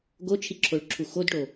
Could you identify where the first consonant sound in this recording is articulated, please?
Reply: velar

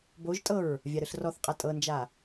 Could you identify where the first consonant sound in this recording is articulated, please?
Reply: labial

